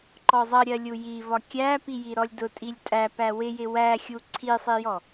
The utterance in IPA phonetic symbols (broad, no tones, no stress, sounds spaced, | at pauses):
ǃ ɔ zˤ ʌ ɾʲ ɜ lʲ u j i v ɒ kʲ æ p i j i ɾ ɔ lʲ d ʊ tʼ i lʲ tʼ æ p æ w ɪ j ɪ w æ xʲ u ǀʰ i sˤ i j ɔ